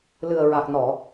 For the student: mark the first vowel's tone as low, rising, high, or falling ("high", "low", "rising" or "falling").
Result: low